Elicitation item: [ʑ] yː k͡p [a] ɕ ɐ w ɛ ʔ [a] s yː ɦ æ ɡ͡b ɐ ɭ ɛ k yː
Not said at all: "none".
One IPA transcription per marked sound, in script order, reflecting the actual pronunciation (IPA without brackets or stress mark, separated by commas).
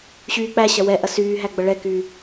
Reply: ɕ, æ, ɐ